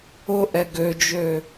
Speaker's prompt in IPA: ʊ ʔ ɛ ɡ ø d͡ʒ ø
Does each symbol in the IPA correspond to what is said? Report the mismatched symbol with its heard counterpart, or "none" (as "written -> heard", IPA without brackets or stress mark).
none